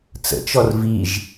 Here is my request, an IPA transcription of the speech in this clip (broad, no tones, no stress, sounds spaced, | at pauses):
t͡s ə̰ t͡ʃ ɔ r v i ʒ